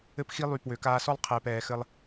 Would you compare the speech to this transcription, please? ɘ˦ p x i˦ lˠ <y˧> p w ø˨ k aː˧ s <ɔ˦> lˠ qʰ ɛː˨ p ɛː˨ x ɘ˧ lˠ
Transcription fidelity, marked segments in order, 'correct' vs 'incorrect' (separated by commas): correct, correct